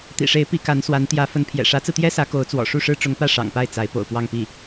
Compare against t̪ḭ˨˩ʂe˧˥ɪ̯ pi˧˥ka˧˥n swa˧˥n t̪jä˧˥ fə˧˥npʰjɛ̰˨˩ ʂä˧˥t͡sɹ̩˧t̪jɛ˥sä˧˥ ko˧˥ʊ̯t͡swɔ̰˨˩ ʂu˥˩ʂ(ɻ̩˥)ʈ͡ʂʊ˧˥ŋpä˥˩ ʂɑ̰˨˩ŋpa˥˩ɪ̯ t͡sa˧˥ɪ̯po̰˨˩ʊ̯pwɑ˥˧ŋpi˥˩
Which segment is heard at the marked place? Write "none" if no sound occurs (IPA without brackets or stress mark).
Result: ɻ̩˥